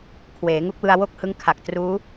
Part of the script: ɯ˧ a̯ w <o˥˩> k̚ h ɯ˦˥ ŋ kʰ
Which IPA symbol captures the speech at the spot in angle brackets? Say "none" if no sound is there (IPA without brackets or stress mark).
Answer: o˥˩